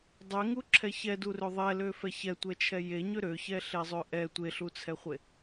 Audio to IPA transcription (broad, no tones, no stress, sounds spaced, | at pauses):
dˤ ɛ ŋ u ǁʰ ɛ ç ɛ d u r ø ðˤ ɛ l ø f ɛ ç ɛ tʷ ɛ t͡ʃʰ ɛ j e ɲ ø ɾ ø ç ɛ ɬ e zˤ ø ʔ ɛ tʷ e ɬ u t͡sʰ ɛ χʷ e